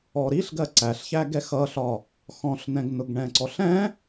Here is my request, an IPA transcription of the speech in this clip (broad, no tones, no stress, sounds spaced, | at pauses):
ɔ ɾ i ɬ ɡ ɜ ǀ æ ɬ ç æ ɡ ɛ x ʌ ɬ ɒ | x ɔ̃ ɬ n ɛ̃ ɡ n ʊ ɡ ɳ ɛ̃ ǀ ɔ ɬ ɛ̃